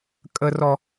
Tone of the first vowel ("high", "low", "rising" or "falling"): high